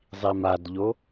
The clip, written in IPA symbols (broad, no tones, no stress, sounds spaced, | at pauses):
zˤ i m a d ʎ o